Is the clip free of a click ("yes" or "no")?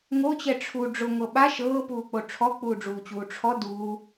yes